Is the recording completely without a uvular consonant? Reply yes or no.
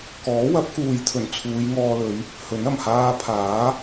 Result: yes